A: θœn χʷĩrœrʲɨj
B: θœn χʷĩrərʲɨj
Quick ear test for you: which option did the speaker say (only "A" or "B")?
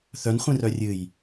A